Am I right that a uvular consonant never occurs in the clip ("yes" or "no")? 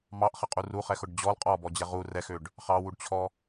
no